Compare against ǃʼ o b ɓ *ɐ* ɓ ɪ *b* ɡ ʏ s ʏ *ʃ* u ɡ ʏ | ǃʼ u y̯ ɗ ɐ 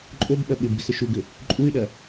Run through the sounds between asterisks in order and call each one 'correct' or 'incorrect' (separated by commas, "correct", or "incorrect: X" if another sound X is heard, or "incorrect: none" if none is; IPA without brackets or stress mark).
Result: correct, correct, correct